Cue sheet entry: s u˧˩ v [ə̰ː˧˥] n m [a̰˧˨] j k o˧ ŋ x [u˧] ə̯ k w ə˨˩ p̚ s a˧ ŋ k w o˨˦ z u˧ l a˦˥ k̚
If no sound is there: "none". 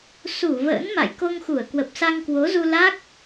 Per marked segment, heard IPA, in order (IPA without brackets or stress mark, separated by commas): ə̰ː˧˥, a̰˧˨, u˧˩